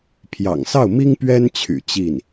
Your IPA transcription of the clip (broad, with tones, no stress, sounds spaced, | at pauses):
pʰ j ɑ̰˨˩ ŋ s ɑ˥˩ ʊ̯ m i˥ ŋ p ɥ ɛ˥ n t͡ɕʰ y̰˨˩ t͡ɕ i˥˩ n